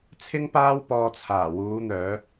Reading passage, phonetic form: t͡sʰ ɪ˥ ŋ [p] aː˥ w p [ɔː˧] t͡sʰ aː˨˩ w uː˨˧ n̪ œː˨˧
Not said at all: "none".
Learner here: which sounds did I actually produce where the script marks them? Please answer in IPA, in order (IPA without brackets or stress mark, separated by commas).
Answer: p, ɔː˧